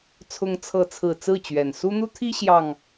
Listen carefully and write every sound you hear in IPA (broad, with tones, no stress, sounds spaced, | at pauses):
t͡sʰ ʊ˦ ŋ t͡sʰ ɤ˥˨ t͡sʰ ɹ̩˥˨ t͡s ɹ̩˥˨ t͡ɕ ɥ ɛ˨˩ n s u˦ n̪ u˦ t̪ʰ i˦ ɕ j ɑ˨˩ ŋ